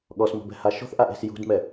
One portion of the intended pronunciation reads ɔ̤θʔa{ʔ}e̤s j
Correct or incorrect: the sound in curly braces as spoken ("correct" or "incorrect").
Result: correct